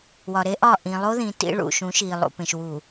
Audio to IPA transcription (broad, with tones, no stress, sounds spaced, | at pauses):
w ɒ˨ ɾ e˦ ʔ ɒ˦˨ ʔ ĩ˨ lˠ o˦ ð ĩ˨ t ḭ˦ ɭ ṵ˨ ʃ ũ˨˦ ʃ i˨ lˠ ṵ˨ p ẽ˨ ʃ w u˨